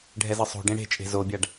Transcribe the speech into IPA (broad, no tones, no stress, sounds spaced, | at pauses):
ɖʱ ɛ z ɯ sˤ o̤ ɖ ẽ ɽ e̤ t͡ʃʼ e̤ z o bʲ a ɖ